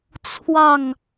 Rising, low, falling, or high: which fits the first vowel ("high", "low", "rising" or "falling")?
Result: falling